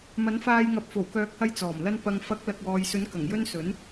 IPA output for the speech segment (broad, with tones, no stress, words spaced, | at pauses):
mɐ˨˥nfaː˧jŋɐ˨˥p̚ fo˨˩wkœː˨˥k̚hɐ˧j t͡sɔː˨˩mlɐ˧n pɐ˨ŋfɐ˨˥k̚ lɐ˨k̚wɔː˨jsɵ˨˥n kɐ˨˩ŋjɵ˥n sɵ˨˥n